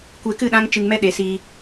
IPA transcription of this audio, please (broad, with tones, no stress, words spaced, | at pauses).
kʷe˧kɨ˦˨ ɗã˦ŋ t͡ʃɨ˧ŋmɛ˦ ɗe˨˦siː˧